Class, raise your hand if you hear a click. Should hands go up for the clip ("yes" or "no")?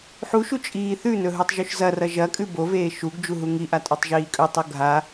no